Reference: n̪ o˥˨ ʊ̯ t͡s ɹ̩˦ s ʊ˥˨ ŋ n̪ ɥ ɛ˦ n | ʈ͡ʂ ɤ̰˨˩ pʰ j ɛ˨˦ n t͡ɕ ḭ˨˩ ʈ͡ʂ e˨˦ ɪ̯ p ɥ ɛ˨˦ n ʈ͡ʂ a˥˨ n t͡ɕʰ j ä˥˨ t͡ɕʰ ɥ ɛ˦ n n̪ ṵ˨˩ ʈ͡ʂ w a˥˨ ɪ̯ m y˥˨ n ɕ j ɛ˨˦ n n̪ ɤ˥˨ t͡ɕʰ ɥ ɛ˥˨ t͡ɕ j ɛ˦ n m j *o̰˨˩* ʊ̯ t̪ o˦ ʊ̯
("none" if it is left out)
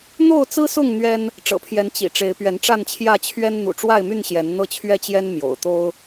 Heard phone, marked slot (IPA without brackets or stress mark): o̰˨˩